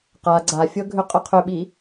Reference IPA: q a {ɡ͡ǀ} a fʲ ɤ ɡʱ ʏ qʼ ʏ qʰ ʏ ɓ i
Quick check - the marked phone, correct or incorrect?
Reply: correct